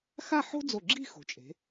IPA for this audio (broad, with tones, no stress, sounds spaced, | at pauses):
x a˥˧ ħ o̤˥ d͡z o˧˩ ɡ͡ǁ i̤˥˧ x o̤˩˧ t͡ʃʼ e̤˩˧